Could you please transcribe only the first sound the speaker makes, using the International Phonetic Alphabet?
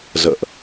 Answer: z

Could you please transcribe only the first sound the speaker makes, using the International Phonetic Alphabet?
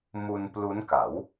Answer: m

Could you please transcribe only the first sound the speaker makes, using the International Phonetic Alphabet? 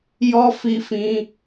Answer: j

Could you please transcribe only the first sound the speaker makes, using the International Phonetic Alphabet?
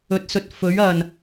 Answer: ɵ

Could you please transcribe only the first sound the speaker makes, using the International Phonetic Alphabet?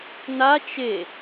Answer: n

